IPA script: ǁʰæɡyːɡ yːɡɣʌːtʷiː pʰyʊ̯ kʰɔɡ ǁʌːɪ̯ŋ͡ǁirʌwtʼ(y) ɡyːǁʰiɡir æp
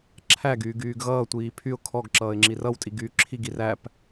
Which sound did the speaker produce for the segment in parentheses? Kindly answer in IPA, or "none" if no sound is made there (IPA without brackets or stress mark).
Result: i